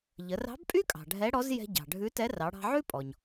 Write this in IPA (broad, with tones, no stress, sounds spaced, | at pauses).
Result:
ʎ ə˩˧ r ɑ̤˧˥ b pʼ y˥ kʼ ɑ̤˩ ɖʱ ɛ˧˥ ɽ ɔ˧˥ z j ɛ̤˧ ɟ ɑ̤˩ ɖʱ ʉ˧˥ t ɛ˧˥ r ɑ˩˧ ɽ ɑ̤˧ ʕ ʉ˥ pʼ ɔ˩ ɲ